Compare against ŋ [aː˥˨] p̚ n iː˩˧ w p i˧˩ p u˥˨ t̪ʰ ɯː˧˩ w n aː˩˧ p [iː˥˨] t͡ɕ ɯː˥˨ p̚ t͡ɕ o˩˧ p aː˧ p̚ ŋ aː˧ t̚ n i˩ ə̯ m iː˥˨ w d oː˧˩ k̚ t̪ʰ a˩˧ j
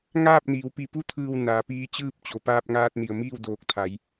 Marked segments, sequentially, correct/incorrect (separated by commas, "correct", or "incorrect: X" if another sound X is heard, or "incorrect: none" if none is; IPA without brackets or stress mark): correct, incorrect: iː˧˥